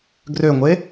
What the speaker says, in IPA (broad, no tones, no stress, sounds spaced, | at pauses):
ɡ r ø ŋʷ e